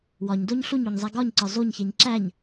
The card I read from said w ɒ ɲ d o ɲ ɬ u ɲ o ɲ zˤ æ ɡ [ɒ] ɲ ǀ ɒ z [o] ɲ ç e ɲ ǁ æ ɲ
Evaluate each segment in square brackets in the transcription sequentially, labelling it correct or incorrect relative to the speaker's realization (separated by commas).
correct, correct